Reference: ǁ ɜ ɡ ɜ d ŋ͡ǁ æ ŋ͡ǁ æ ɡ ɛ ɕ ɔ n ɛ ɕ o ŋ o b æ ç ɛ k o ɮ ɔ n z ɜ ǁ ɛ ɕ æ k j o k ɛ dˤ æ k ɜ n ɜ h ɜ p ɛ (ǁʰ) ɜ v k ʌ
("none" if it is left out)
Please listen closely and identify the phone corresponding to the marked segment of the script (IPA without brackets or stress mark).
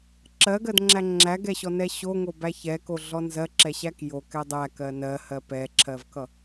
ǁʰ